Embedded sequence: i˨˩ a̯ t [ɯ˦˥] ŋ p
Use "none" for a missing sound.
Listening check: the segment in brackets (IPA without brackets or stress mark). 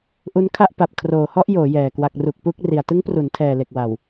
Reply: ɯ˦˥